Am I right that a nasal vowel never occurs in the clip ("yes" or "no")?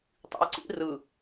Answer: yes